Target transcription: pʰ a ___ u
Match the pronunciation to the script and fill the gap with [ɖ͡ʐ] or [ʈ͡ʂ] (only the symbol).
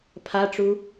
ʈ͡ʂ